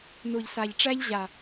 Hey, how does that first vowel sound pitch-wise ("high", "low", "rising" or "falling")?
low